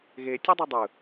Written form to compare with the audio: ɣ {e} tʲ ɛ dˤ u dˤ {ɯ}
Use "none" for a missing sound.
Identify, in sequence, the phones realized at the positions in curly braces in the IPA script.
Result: e, ɯ

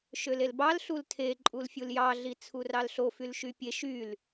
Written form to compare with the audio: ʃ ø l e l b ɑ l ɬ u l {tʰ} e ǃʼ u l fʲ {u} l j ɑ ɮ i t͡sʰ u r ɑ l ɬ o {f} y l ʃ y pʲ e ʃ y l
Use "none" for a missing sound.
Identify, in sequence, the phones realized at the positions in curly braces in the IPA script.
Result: tʰ, u, f

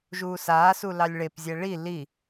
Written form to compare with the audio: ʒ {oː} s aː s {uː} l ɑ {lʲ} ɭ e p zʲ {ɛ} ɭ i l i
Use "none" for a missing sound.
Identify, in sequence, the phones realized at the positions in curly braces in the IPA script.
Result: uː, u, lʲ, ɛ

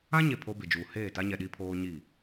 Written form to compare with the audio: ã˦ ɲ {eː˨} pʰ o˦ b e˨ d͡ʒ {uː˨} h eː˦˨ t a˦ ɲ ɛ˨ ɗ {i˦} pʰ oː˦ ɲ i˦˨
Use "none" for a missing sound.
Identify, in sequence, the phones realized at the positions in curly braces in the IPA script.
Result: e˨, uː˨, i˦

